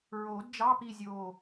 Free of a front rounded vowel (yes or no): yes